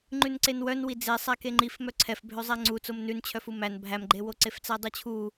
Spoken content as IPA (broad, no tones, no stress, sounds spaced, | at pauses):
ŋ͡ǃ ʉ n ǀ e n w œ n w i d͡z e sˤ æ k e ŋ͡ǃ i f m œ ǀʰ ɛ f bʱ ø zˤ æ ŋ͡ǀ u t͡s o m n ʉ n t͡ɕʰ œ f u m æ n bʱ æ m ɡ͡ǃ e w o ǀ e f t͡s æ dˤ ʉ t͡ɕʰ u